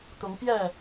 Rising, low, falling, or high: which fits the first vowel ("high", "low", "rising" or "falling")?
rising